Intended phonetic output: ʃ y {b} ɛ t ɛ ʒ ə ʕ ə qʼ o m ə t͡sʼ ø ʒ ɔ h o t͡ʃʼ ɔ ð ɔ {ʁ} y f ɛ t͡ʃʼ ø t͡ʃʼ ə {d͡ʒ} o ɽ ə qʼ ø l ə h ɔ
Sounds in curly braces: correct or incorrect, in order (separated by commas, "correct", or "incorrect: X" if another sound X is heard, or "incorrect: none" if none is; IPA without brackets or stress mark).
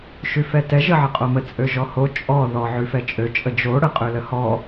incorrect: f, incorrect: ʕ, correct